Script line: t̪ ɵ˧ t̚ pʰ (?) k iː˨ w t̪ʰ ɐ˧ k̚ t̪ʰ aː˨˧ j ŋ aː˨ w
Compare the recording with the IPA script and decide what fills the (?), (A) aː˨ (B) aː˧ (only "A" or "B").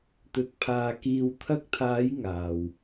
B